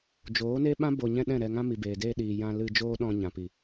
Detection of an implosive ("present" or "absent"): present